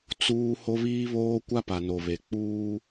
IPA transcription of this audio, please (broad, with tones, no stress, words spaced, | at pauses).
t͡suː˦ ho˦βiː˦βoː˦ kʷa˦pa˨ no˨βe˨ k͡puː˦